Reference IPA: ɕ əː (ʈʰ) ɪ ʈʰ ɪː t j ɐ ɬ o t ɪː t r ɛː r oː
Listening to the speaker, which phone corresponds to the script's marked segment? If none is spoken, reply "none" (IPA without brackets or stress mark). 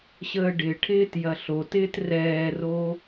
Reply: ɖ